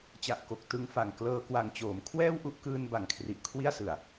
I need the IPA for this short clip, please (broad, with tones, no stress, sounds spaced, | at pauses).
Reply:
t͡ɕ a˨˩ ʔ k o˨˩ k̚ t ɯ˧ ŋ f a˨˩ ŋ k l ɤː˧ k w a˨˩ ŋ t͡ɕ oː˩˦ m kʰ w ɛː˥˩ w ʔ u˦˥ ʔ k ɯː˧ n b a˨˩ ŋ kʰ r i˨˩ ʔ kʰ w i˥˩ a̯ s ɯ˨˩ a̯